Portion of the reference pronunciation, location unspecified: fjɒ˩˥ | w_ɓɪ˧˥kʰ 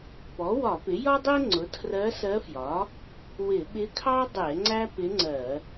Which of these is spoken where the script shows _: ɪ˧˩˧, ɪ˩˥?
ɪ˧˩˧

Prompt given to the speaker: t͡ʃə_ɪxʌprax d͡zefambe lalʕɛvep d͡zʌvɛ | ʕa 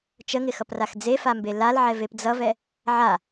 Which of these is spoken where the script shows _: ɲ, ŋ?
ŋ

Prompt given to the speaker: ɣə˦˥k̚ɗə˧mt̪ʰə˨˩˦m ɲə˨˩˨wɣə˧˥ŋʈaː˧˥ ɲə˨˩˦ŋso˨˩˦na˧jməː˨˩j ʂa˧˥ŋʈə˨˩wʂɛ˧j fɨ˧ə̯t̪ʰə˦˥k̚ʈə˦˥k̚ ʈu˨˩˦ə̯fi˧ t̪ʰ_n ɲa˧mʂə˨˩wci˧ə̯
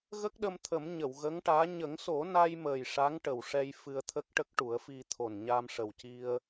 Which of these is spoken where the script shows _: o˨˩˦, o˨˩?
o˨˩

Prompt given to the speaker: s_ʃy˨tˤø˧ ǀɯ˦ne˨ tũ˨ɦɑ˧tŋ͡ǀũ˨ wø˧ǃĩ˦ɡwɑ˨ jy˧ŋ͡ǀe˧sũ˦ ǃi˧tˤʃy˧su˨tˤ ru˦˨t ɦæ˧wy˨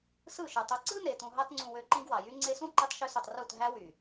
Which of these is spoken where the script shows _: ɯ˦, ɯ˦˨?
ɯ˦˨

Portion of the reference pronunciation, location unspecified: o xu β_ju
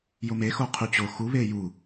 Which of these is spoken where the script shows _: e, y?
e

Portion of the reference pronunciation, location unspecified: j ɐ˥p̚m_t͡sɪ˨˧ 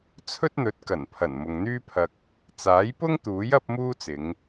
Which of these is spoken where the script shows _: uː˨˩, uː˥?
uː˥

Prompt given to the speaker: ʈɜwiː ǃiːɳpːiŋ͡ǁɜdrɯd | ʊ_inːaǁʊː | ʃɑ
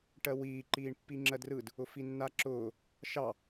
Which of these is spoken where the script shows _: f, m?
f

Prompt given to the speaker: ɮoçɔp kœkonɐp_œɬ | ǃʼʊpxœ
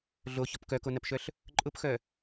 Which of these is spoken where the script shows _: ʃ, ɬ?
ʃ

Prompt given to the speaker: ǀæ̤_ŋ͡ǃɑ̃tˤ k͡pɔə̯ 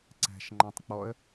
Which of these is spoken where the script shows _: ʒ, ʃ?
ʃ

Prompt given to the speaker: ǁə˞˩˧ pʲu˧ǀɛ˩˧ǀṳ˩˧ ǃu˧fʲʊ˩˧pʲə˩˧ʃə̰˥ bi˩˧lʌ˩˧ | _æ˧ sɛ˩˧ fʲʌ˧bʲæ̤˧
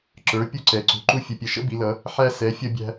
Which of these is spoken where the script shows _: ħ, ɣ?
ħ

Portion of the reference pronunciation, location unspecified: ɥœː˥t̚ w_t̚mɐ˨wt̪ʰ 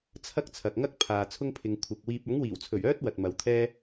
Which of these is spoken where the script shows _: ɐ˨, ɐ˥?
ɐ˨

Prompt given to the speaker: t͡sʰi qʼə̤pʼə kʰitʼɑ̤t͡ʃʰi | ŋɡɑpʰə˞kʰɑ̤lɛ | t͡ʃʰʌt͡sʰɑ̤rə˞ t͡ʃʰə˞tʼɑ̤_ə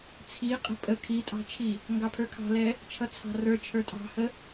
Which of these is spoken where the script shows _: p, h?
h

